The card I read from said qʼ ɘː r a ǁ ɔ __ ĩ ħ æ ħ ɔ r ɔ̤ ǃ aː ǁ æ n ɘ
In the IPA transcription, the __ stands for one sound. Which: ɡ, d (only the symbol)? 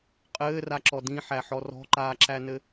d